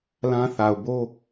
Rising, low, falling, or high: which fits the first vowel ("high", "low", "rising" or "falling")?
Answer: high